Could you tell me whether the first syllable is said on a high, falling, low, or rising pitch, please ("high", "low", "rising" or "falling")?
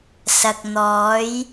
low